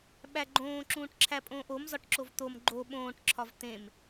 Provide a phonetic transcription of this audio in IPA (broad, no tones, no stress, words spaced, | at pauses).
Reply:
ɓæɡ͡ǃõː ǁũːʈǁʰæpʼõːʔom zɒʈǁovt̪om ɡ͡ǃo ɓõːʈ ǁʰɒvt̪ẽm